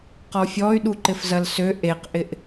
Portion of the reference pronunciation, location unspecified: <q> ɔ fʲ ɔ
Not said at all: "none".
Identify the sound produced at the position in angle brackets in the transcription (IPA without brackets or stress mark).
q